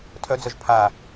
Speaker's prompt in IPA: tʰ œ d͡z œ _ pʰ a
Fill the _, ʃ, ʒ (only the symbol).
ʒ